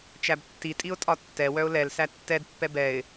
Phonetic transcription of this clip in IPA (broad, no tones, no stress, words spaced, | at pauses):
t͡ʃæbtːitʼiʊ̯ tʼɒtːɛ wœʊ̯lɛl sætːɛd pːɛbɛɪ̯